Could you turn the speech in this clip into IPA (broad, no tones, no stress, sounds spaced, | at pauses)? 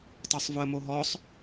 tˤ œ sˤ v ʊ ə̯ m o ɦ ɔ sˤ